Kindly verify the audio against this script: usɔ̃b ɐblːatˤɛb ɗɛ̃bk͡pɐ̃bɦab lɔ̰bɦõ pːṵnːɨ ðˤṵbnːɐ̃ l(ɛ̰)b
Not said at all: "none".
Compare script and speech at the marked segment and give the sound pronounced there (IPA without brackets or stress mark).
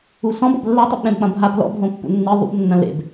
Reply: ḛ